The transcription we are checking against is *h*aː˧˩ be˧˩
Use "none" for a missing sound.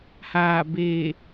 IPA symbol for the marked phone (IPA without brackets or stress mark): h